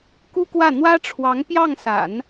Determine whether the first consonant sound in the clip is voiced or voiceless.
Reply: voiceless